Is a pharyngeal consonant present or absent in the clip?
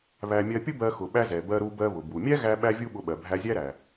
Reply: absent